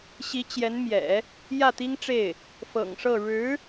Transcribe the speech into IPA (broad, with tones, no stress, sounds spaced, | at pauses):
ɕ i˧˥ t͡ɕ j ɛ˧˥ n m j ɛ̰˨˩˦ | j ä˥˩ t̪ i˥ ŋ ʈ͡ʂ e˥˩ ɪ̯ | f ɤ̰˨˩ ŋ ʂ ɤ˥˩ ɻ ɻ̩˧˥